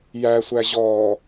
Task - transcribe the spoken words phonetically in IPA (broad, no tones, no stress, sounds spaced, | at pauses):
j æ sʷ æ ʑ ɔː